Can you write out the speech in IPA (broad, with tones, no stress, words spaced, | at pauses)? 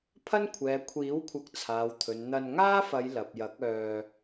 pʰɐ˥nkʷʰɛː˨ kʷʰiː˨˥wkʷʰɐ˨˥k̚ t͡sʰaː˨wt̪ʰɵ˨n n̪ɐ˧n ŋaː˥fɐ˨˧j lɐ˨p̚jɐ˨˥k̚œː˧